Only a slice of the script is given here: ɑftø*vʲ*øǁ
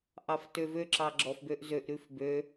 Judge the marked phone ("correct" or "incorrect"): incorrect